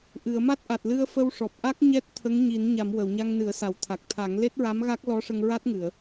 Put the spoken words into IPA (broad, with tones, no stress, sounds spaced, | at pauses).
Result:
ʔ ɨ˨˩˨ ə̯ m a˦˥ t̚ ʔ a˨˩ t̚ l ɨ˧ ə̯ f ə˧ w ʂ ɔ˨˩ p̚ ʔ a˦˥ k̚ ɲ ɛ˦˥ t̚ t̪ʰ ə˧˥ ŋ ɲ i˨˩˦ n ɲ a˨˩˨ m w ə˨˩˨ w ɲ a˧ ŋ n ɨ˨˩˦ ə̯ s a˨˩˨ w t̪ʰ a˨˩ k̚ t̪ʰ a˨˩˦ ŋ l e˦˥ t̚ ɹ a˧˥ m ɣ a˦˥ k̚ l ɔ˧˥ ʂ ə˧ ŋ ɹ a˦˥ t̚ ŋ ɨ˨˩˨ ə̯